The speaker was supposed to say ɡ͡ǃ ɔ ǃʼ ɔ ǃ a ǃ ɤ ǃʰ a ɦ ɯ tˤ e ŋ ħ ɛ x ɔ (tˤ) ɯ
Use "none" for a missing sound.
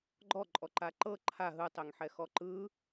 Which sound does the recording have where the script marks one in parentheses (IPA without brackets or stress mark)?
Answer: ǃ